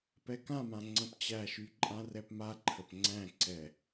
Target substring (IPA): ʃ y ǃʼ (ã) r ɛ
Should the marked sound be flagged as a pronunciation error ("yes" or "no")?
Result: no